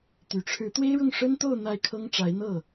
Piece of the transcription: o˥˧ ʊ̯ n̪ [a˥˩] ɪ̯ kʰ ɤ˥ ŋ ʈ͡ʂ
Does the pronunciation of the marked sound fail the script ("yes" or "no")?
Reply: no